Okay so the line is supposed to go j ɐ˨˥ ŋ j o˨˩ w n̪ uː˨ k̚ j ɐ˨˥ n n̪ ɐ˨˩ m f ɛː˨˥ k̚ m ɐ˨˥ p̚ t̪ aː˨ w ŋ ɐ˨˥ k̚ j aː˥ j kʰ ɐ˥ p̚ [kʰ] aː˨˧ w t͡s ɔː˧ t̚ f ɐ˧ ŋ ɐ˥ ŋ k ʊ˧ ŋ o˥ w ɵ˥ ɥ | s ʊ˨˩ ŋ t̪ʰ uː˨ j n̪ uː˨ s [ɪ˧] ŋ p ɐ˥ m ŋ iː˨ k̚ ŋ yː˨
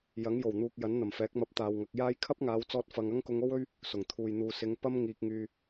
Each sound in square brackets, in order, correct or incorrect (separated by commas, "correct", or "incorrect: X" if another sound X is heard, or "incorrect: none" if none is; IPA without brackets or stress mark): incorrect: ŋ, incorrect: ɪ˨˧